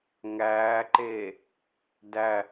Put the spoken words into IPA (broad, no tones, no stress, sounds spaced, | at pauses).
ŋ æː ǃ eː | d æ